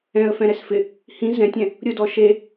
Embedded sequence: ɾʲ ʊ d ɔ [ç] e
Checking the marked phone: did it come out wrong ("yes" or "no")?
yes